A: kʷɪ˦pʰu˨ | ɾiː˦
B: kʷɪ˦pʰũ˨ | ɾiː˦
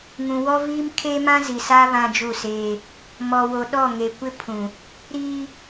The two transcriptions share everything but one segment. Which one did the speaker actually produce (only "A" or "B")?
B